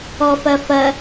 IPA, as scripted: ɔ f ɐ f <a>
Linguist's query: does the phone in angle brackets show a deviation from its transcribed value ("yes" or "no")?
yes